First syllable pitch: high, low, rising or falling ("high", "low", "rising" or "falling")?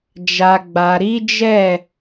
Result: low